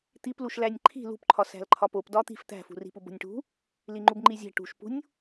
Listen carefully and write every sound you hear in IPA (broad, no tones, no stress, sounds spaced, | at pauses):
t̪ i p l u ʃ l æ nʲ ǃʰ i̤ l ṳ p ǃʰ ɒ s æ̤ l ǃʰ ɒ p o p d ɒ t̪ i̤ f t̪ æ̤ f ṳ r i̤ p u b o̤ nʲ ʈ ṳ | l i ŋ͡ǃ u b ŋ͡ǃ i zʲ æ̤ ʈ ṳ ʃ p ṳ nʲ